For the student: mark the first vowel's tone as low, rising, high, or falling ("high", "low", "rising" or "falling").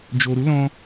low